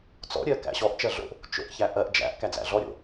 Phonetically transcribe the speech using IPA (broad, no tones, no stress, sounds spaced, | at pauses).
t͡s ɔ̰ ɾʲ ɜ k æ̰ ɕ ɔ ʔ t͡ʃ ɜ ɮ o̰ ʔ | t͡ʃ o̰ ʔ ç æ ʔ ɜ ʔ d͡ʒ æ̰ ʔ k æ d͡z æ̰ ɮ ɔ ɾʲ o̰